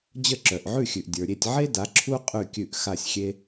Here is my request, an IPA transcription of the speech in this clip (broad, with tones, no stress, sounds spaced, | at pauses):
d͡ʑ ə˥˨ ǁ œ˨ ʔ ʕ ʉ˥˨ xʲ ʉ˨ ʔ dʲ ə˞˨ ɾʲ e˥˨ tʲ ʕ e˥ d a˨˥ ǁʰ u˥ qʼ ʉ˥˨ kʲ ʉ˥˨ ʔ x a˥˨ sʲ xʲ e˥